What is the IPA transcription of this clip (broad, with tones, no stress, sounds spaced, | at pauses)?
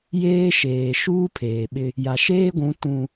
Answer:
j eː˦ ʃ eː˨ ʃ uː˦ pʰ eː˨ ɓ ɪ˦ | j a˨ ʃ eː˦ ɡʷ ũ˨˦ t ũ˦